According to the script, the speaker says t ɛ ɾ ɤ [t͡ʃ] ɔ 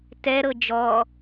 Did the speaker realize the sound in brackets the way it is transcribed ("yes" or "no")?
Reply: no